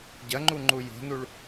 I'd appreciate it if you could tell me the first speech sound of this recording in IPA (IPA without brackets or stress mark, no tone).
ɟ